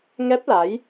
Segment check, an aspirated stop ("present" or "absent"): absent